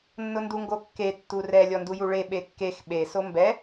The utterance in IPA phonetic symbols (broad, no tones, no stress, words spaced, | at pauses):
nːʊnduŋɡokːe tːurɛ lʲɔndujuɭe ɓekːex ɓe sombɛ